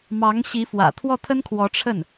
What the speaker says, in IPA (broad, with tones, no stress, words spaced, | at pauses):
mɑ˧˥ŋɕi˧˥fwä̰˨˩ t̪ʰwɔ˥˩t̪ʰə˥nkʰwɔ˧˥ʈ͡ʂʰə˥˩n